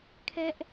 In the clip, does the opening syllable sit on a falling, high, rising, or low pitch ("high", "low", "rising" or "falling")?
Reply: high